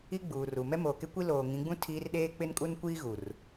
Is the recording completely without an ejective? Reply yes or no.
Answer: no